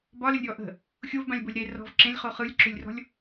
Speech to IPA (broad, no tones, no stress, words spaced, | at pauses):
bɒləlʲɾʲɔ ʔə̤ | xʲovbãlʲbolʲ ɾe rɔ̤v ǁẽlʲχo χɯlʲǁʏlʲrɔ̤lʲ